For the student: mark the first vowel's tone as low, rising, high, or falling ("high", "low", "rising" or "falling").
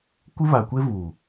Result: high